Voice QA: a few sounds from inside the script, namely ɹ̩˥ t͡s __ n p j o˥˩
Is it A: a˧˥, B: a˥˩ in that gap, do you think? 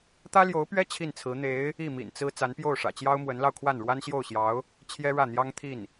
A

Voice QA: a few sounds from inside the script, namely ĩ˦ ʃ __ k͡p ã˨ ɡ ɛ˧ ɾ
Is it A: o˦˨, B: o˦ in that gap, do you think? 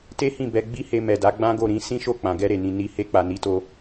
A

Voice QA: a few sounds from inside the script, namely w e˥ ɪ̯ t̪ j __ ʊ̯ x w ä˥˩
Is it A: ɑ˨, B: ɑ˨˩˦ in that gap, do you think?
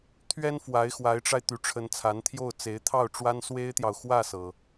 A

